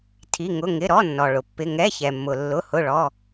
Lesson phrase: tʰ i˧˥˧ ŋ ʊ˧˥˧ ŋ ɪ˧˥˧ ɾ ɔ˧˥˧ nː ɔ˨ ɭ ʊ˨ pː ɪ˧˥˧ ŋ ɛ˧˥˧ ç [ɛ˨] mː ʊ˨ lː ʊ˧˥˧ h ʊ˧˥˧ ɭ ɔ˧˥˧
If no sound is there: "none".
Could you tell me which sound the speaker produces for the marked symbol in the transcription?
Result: ɛ˨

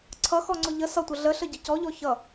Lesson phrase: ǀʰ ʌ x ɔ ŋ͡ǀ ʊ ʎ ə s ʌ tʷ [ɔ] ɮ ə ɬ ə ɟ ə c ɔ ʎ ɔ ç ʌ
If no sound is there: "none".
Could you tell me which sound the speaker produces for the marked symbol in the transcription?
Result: ʌ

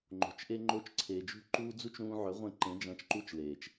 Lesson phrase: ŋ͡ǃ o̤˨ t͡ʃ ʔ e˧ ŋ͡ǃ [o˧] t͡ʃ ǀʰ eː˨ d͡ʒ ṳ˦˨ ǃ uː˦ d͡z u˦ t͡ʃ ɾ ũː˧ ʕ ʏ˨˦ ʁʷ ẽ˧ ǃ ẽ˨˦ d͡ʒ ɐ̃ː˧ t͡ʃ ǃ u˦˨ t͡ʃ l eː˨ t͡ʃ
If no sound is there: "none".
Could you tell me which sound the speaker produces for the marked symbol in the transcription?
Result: o˧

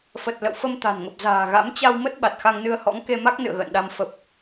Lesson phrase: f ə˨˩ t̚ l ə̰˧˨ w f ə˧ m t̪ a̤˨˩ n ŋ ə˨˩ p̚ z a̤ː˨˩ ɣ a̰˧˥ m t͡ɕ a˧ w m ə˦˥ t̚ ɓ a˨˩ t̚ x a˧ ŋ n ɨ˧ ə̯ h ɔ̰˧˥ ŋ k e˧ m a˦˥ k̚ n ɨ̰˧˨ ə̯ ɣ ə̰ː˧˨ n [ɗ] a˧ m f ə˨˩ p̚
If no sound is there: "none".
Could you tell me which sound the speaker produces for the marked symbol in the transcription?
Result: ɗ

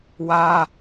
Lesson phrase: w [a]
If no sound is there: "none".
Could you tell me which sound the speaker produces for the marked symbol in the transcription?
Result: a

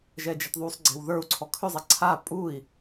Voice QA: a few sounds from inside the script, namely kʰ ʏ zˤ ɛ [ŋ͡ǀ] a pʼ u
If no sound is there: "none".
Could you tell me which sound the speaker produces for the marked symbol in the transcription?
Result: ǀʰ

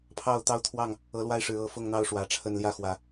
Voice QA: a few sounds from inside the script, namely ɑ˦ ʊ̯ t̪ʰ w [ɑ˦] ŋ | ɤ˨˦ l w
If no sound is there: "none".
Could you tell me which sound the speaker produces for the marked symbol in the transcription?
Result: ɑ˥˨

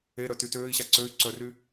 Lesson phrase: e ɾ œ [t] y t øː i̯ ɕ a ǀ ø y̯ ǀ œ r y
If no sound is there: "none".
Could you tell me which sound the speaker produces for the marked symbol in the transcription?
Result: t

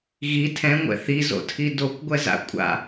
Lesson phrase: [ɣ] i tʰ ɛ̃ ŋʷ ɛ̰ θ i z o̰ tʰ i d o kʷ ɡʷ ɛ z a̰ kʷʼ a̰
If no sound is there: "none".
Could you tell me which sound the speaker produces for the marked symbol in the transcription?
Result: ɣ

